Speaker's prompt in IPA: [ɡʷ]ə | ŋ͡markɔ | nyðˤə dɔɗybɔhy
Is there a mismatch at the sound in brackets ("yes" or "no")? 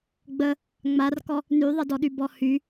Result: yes